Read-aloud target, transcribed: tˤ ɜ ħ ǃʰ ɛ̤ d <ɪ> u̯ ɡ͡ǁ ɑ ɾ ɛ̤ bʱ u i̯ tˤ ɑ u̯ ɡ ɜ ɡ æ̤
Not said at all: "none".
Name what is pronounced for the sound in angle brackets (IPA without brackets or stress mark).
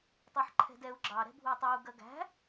ɛ